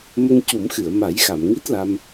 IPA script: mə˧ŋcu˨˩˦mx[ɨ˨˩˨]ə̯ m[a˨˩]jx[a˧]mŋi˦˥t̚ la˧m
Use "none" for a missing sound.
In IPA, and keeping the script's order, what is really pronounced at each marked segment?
ɨ˨˩˨, a˨˩˦, a˨˩˨

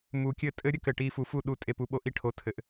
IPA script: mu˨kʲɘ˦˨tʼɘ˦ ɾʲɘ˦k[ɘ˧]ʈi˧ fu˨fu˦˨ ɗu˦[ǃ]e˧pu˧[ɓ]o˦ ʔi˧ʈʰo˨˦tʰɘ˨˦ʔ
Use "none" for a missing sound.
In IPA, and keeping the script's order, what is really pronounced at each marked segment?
ɘ˨, tʼ, ɓ

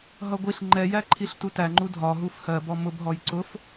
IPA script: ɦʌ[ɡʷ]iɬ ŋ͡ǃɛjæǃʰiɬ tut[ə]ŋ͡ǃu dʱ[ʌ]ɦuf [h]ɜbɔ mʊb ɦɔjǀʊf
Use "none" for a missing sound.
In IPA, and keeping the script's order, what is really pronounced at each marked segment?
ɡʷ, æ, ɒ, h

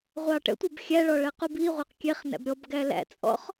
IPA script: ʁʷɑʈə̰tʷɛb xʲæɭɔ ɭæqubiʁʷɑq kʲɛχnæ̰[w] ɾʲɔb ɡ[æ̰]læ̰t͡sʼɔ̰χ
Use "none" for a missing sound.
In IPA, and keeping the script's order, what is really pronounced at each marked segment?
b, æ

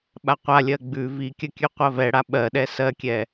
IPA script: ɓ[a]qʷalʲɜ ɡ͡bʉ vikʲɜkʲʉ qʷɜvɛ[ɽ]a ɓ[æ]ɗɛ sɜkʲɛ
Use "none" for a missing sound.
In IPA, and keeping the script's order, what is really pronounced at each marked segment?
a, ɽ, ɜ

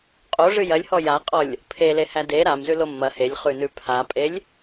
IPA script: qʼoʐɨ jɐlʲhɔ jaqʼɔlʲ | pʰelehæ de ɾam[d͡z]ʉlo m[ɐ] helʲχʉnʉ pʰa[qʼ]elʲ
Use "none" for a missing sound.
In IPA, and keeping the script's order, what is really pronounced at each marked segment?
z, ɐ, pʼ

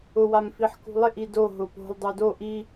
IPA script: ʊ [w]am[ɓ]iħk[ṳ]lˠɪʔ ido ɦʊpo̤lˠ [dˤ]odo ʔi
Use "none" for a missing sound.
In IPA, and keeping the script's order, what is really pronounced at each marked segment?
w, f, ṳ, dˤ

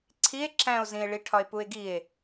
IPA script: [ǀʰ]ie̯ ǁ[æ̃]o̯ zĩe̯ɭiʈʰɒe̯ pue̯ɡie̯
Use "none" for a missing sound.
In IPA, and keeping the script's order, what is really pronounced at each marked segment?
ǀʰ, æ̃

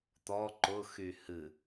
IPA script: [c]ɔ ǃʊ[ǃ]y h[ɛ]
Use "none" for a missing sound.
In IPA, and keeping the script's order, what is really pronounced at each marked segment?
t̪, x, ɨ

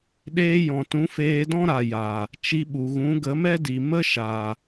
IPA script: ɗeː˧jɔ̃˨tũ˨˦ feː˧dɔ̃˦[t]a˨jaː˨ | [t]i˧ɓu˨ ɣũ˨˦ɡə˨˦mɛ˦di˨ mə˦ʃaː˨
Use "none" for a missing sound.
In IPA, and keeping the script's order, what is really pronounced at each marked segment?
ɾ, t͡ʃ

